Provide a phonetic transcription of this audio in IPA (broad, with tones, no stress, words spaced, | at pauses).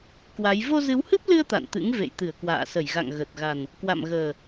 kwa˨˦j vo˧zɨ˨˦whɨ˦˥p̚lɨ˧ə̯ t̪a̰˧˨nt̪ɨ̰˧˥ŋ vḛ˧˨jt̪ɨ˧˩ə̯kwa̰ː˧˨sə˧˩j ɣa̰˧˨ŋɣə˨˩t̚ɣa˨˩n | kwa̰˧˨mɣəː˨˩